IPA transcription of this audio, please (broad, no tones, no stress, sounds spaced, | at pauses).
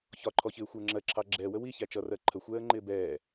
ç ɒ ǃʰ ɔ ç ɪː xʷ ɪ ə̯ ŋ͡ǁ ɜ ǁʰ ɑ ɡ͡ǁ ɛː w ə w i ç æ t͡ʃ ʌ r ɜ ǃʰ ə xʷ ɛː ə̯ ŋ͡ǃ ɪː b ɛː